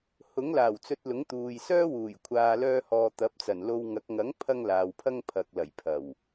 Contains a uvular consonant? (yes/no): no